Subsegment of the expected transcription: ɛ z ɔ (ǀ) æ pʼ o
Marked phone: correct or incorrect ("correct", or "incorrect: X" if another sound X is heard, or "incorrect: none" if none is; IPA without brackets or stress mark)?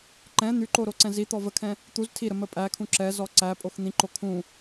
correct